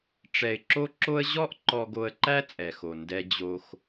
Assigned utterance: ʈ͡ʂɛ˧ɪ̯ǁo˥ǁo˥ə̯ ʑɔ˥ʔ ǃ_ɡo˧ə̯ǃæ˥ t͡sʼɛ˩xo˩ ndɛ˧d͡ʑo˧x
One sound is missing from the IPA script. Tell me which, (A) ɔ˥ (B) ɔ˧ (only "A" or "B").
B